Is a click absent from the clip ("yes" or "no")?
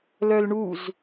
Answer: yes